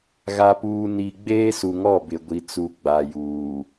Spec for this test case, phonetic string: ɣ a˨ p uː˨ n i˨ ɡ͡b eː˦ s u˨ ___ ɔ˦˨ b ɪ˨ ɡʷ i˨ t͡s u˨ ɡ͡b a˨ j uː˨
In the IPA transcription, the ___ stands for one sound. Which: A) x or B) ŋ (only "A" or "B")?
B